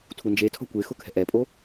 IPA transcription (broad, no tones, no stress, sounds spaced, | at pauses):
tʰ u n d͡ʒ e tʰ ɔ̤ kʷ e x ʊ kʰ ɛ̤ ʔ ɛ pʼ o